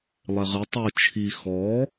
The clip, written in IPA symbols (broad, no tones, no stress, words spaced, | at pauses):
lˠeʁɨ tˤo t͡ʃʰi xɔ